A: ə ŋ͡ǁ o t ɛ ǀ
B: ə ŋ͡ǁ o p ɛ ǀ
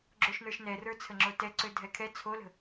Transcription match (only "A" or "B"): A